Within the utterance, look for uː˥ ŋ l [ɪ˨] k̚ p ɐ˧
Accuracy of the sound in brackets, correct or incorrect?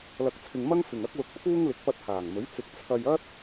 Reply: incorrect: ɪ˨˥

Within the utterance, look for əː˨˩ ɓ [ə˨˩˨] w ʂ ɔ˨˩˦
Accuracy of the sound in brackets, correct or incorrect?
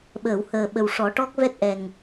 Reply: incorrect: ə˨˩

